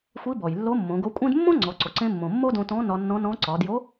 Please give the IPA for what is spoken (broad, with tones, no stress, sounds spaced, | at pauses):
xʷ i˧˥ b ɔ˩ j lː o˧˥ mː õ˩˧ ɡ o˧˥ kʷʼ ẽ˥ d mː õ˥ ŋ͡ǀ ɔ˩˧ ǀ o˩ ǀ ẽ˧ mː õ˩ mː o˥ d õ˧ t ɔ̃˧˥ n ɒ˧ nː ɔ̃˧˥ n ɔ̃˧˥ ǀ ɒ˩˧ d j o˧˥